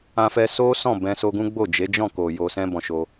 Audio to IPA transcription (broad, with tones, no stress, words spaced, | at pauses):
ã˧fɛ˧ so˦ sɔ̃˦˨bɛ̃˧ so˧ɡũ˦ ɡ͡bo˦˨d͡ʒe˨˦d͡ʒɔ̃˦˨ko˨ jo˧sɛ̃˦ bɔ̃˧ʃo˧